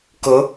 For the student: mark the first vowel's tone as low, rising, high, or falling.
rising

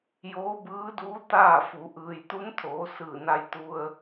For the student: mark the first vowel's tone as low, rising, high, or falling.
rising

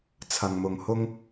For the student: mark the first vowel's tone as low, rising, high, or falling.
low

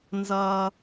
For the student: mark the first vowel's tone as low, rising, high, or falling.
high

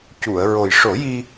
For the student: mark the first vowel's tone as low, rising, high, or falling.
low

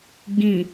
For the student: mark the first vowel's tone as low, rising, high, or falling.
low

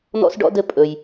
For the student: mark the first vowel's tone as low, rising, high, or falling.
high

